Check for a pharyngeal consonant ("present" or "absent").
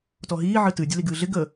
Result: present